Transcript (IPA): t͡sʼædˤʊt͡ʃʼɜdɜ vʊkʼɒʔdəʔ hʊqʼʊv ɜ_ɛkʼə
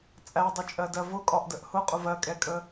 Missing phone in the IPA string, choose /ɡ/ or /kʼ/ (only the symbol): kʼ